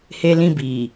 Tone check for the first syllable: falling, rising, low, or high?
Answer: high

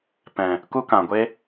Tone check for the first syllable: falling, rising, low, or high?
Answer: low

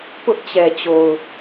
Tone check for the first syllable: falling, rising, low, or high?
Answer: high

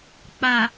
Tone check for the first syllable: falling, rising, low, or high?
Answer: low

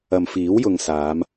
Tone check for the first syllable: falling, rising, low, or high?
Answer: low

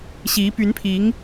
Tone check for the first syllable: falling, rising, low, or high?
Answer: rising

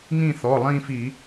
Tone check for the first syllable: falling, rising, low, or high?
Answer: falling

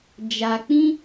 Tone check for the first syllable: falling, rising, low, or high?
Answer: low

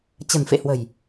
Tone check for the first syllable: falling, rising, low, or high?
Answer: low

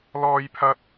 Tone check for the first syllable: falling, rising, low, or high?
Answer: high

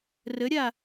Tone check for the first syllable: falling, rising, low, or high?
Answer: rising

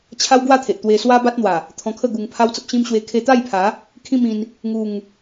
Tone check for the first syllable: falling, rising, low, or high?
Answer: high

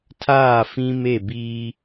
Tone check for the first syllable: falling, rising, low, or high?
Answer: falling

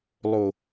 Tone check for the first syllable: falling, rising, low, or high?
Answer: low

